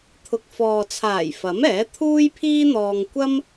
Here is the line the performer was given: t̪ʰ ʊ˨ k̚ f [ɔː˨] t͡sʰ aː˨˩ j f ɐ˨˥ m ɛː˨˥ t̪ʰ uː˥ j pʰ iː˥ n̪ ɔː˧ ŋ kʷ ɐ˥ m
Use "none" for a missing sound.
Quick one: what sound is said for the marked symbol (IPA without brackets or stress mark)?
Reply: ɔː˨